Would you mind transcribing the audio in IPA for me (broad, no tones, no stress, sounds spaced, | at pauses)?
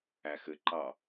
æ x ɘ ǃ ɑ